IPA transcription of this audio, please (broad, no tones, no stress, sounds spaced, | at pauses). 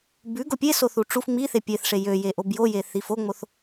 b ʉ ɡ o pʲ e s o θ u ʈ͡ʂ u f ŋ͡m i θ e pʲ e θ ʂ e j ø j e ʔ o b j o j e θ i f o ŋ͡m o θ